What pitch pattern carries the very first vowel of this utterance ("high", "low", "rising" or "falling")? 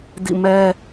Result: falling